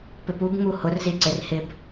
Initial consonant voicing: voiceless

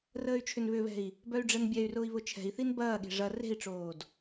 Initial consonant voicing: voiced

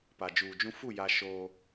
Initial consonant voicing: voiceless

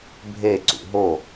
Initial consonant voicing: voiced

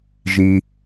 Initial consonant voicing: voiced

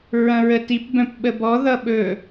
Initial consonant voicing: voiced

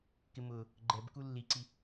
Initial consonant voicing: voiceless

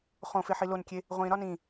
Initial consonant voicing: voiceless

